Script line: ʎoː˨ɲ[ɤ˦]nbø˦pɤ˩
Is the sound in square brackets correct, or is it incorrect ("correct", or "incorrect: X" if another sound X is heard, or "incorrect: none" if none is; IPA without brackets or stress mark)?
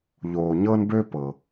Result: correct